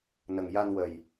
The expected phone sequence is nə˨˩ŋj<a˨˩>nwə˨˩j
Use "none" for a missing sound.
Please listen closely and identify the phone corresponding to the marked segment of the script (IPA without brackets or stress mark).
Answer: a˧